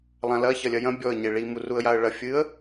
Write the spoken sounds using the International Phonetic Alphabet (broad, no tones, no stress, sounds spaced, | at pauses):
lˠ ã l ɐ ç ɐ lʲ ɐ j ɐ̃ bʲ ɔ ə̯ ɲ e ɭ i m u r u ə̯ j a ə̯ ɭ ɐ fʲ ɨ ə̯